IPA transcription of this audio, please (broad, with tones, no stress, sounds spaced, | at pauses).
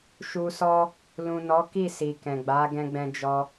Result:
ʃ u˧ s ɔ˦ | l ũ˨ n ɔ˨˦ k i˦˨ s i˨ k ɛ̃˨ ɡ͡b a˨˦ ɡ ɛ̃˧ ɡ͡b ɛ̃˧ d͡ʒ ɔ˧